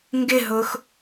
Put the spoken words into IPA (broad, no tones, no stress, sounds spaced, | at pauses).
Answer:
ŋ ɡ ɪ ɦ ʊː x